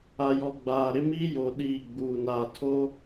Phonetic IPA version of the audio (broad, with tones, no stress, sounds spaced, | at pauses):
a˨ j ɔ˨ ɡ͡b aː˨ ɾ ɪ˦ m i˦ j o˨ ɗ iː˦˨ ɡ͡b uː˨ n aː˨ tʰ oː˦